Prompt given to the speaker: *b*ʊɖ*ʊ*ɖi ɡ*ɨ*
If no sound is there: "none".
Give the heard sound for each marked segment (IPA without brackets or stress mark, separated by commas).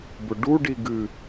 b, u, ɨ